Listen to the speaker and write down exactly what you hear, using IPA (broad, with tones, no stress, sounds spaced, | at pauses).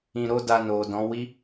ĩ˧ ɾ o˦ d a˧ n o˨ d ɔ̃˨˦ w i˦